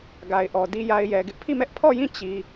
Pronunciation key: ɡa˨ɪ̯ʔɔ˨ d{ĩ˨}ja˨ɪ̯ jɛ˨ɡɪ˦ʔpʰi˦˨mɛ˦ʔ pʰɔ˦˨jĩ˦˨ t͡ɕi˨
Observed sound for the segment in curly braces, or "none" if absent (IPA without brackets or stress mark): i˨